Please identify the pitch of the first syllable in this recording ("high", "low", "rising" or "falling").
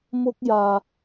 high